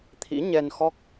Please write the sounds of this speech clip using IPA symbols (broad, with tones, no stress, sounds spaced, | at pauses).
t̪ʰ ḭ˧˥ ɲ ɛ˧ n x ɔ˦˥ k̚